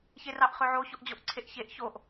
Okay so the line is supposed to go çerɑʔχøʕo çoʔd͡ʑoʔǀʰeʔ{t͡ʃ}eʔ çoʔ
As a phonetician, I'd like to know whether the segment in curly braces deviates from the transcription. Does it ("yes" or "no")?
yes